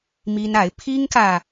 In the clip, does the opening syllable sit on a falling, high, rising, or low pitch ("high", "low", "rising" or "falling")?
high